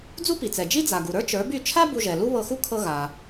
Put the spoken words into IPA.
d͡z u˥ p i˩ t͡s ɛ˩ d͡ʒ i˥ d͡z a˩ ɡ u˩ ɾ ə˞˥ t͡ʃ ə˞˩˥ b y˥˩ t͡ʃʰ a˥ b u˧ ʒ ɛ˩ l u˥ β ɤ˧ x u˥ kʰ ɤ˧ ɣ a˩

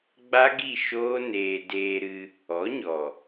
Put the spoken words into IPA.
ɡ͡b a˦ ɡ i˦˨ ʃ oː˦ n eː˧ d eː˧ ɾ ɨ˧ | ɔ˨˦ ɲ ɔ˨

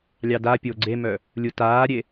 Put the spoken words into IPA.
lʲ ɑ d a pʲ o ɡ͡ǀ e m œ | lʲ u t aː ɾʲ e

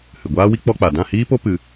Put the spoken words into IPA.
h ɨ˨ ɡʷ aː˦ w i˦ k͡p ɔ˦ k͡p a˨ d ã˦˨ h iː˦ p o˦ p ɨ˧

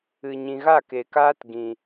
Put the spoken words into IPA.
ɨ˨ ɲ ĩ˨ ɣ a˦˨ k e˨ k aː˦ t ɡ ĩ˨

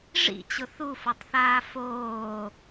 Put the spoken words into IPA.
ʐ ḭ t͡ɕ ʊ θ u f o tˤ θ aː f oː

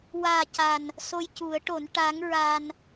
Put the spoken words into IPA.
w aː˨˩ c a˨˩ n | s o˧ j c u˨˩˦ ə̯ ʈ o˨˩˦ n ʈ a˧˥ ŋ ɹ a˧ n

